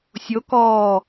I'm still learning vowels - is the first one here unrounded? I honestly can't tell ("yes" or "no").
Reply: no